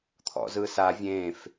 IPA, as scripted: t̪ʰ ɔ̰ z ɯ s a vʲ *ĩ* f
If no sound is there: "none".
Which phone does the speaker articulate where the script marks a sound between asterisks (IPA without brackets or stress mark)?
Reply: ẽ